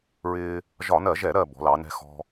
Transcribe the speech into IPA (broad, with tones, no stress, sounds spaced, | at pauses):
ɹ ɪː˧ | ʒ ɒ˧˩˧ n ɜ˧˩˧ ʒ ɛ˧˩˧ ɾ ɜ˧˩ b ɔ̤˩˧ l ɑ˩˧ n ɛ̤˧ x ɔ̤˧